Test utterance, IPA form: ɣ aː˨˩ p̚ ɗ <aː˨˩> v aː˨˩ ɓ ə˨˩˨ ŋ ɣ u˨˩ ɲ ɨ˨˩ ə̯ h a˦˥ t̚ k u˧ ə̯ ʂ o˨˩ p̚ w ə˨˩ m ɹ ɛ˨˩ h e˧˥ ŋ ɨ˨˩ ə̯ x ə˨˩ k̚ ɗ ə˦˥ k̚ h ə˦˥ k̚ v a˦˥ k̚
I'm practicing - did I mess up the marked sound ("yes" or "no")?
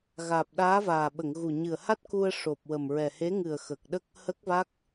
yes